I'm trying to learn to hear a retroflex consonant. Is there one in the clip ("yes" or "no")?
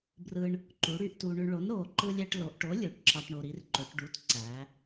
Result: yes